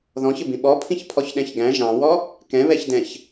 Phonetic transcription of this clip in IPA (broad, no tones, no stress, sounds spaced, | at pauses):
ð ɔ̃ ç ɪ b ĩ ɓ ɔ pʰ ĩ ç pʰ ɔ ç ɗ ɛ̃ ç ɡ æ̃ ʒ ɑ̃ w ɔ | k ɛ̃ β ɛ ç d ɛ̃ ç